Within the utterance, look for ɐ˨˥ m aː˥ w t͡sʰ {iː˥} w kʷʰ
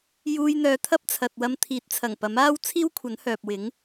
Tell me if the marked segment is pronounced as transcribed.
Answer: yes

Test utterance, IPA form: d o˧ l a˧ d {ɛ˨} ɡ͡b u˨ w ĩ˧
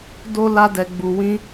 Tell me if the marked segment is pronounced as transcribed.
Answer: yes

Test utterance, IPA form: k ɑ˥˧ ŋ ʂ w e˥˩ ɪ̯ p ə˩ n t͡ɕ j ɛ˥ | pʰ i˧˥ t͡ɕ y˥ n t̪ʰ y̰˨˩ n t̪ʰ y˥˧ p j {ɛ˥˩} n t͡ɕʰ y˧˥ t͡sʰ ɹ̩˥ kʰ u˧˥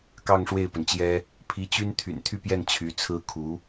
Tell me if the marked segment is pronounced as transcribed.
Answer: yes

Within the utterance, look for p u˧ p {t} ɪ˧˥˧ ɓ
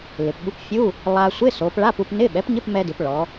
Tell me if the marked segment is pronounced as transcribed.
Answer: no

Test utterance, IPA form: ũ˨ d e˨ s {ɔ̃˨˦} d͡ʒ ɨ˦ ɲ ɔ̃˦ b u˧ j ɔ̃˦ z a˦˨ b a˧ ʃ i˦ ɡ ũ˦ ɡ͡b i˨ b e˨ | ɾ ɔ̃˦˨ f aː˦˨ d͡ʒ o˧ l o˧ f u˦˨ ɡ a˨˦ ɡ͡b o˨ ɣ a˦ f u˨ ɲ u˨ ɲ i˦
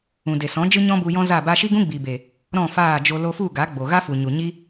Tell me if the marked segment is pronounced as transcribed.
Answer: yes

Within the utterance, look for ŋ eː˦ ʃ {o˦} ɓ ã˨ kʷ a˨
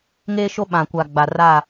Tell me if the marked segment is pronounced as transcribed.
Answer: yes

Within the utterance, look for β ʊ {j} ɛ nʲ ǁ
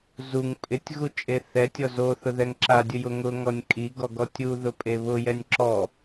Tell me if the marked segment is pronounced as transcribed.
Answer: yes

